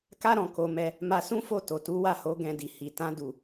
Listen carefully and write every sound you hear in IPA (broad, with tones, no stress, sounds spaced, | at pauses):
k a˦ ɾ ɔ̃˧ k o˧ m ɛ˧ | m a˧ s ũ˦ f o˦˨ t o˨ t u˨˦ w a˦˨ h o˨˦ ɡ ɛ̃˧ d i˨ h i˨ t ã˨˦ d u˦˨